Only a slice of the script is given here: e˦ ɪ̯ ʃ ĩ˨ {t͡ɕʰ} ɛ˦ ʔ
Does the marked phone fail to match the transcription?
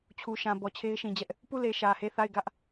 yes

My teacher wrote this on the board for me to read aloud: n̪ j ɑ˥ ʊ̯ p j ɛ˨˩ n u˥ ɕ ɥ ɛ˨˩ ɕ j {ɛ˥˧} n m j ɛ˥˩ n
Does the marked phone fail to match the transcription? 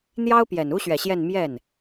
no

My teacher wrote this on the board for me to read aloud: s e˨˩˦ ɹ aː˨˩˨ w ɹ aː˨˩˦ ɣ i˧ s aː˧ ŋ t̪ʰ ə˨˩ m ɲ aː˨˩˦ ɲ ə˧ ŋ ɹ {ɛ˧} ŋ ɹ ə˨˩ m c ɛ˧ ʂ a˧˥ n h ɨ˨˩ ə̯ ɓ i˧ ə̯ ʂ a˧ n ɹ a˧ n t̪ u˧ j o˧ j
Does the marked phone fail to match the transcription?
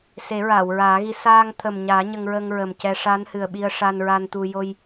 yes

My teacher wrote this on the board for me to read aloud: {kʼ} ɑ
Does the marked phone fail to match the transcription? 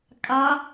no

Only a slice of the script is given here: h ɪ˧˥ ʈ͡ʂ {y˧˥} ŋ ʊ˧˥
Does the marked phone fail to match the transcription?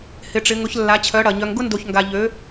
yes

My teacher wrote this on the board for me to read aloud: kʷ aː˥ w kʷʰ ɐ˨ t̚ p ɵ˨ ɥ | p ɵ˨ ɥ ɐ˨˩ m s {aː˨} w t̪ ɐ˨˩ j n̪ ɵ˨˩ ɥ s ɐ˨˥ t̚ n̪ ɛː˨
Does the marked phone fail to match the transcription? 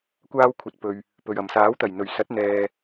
yes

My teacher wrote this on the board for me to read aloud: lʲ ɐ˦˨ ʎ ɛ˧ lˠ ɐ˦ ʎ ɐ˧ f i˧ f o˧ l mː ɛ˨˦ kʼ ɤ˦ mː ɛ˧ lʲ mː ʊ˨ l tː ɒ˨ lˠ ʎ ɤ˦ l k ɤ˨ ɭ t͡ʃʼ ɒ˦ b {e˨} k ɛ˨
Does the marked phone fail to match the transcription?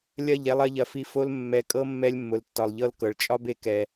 no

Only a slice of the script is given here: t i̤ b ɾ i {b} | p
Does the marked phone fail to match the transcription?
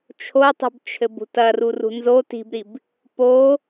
no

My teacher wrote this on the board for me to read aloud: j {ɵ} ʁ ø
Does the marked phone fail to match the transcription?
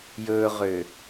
no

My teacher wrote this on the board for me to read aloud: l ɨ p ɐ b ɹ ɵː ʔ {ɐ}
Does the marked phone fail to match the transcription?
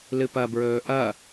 no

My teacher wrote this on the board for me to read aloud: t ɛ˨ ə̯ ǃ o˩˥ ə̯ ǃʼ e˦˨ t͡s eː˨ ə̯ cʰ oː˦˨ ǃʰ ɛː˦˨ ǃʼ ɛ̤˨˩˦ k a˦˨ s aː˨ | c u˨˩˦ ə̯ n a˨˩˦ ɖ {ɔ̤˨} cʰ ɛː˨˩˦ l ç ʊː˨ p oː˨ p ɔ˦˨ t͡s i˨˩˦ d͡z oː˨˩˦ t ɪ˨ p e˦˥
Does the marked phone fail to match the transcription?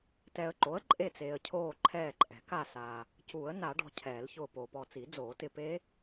no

